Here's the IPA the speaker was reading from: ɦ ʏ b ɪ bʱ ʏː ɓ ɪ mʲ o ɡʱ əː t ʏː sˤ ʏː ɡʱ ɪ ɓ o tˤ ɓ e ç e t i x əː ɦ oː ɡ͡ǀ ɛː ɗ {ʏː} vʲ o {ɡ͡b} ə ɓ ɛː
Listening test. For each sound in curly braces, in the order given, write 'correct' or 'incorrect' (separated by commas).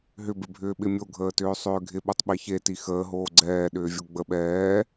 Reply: correct, correct